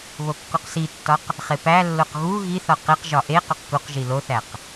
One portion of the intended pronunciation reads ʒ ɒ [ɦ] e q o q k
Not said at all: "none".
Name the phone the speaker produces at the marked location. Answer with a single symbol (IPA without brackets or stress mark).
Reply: ʔ